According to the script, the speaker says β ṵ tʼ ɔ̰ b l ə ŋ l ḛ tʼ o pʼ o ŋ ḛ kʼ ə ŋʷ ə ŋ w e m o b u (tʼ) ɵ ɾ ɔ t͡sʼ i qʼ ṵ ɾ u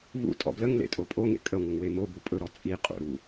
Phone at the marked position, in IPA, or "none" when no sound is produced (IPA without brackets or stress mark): pʼ